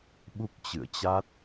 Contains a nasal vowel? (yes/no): no